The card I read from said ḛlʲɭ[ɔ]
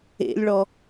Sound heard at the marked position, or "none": ɔ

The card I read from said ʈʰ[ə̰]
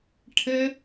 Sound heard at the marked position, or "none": ə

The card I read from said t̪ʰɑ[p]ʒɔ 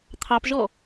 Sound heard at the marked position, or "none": p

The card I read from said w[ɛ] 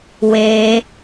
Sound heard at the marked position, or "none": e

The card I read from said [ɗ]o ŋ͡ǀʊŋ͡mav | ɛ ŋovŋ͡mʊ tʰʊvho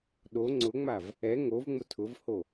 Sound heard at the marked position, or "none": ɗ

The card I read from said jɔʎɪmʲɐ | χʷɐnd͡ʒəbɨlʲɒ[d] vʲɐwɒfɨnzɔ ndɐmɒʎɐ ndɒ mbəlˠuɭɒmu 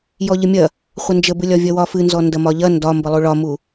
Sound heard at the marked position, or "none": none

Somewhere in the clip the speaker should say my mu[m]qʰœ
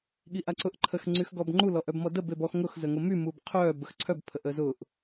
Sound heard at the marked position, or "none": b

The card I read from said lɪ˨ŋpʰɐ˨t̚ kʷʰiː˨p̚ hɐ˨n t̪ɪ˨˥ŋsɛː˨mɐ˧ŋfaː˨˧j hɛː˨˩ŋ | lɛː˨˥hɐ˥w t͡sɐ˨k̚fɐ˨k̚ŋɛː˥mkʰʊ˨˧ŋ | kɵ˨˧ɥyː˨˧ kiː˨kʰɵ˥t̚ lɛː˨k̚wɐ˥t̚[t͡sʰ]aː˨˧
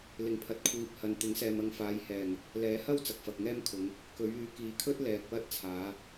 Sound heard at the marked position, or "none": t͡sʰ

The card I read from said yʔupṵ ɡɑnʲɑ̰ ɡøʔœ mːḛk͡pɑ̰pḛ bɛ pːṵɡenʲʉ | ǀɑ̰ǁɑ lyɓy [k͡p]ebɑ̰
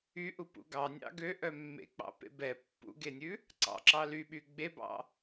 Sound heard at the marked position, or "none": ɡ͡b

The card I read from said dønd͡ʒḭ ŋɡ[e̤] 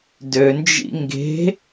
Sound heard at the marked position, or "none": e̤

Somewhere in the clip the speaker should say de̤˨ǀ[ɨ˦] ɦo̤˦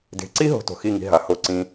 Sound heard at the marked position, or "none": i˦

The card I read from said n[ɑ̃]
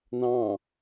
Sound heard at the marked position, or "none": ɑ̃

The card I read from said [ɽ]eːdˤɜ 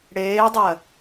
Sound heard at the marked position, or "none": ɽ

